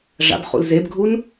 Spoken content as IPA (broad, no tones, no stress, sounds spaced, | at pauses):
ʐ a̰ b χ ṵ l z e b ɡʱ u n